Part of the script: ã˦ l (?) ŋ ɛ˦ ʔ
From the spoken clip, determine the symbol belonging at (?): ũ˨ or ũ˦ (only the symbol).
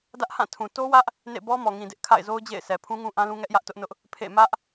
ũ˦